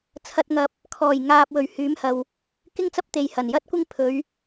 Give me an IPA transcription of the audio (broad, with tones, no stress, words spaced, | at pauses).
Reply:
t͡sʰɐ˨t̚ŋɐ˨p̚ | kʰɔː˨˩jŋaː˨p̚ wɵ˨˩ɥhyː˨˥mhɐ˨w | kɪ˥ŋt͡sɐ˥p̚t̪e˨j hɐ˨˩njɐ˥t̚kʷɪ˥ŋ pʰɵ˨˧ɥ